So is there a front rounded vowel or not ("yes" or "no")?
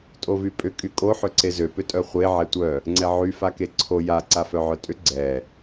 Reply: yes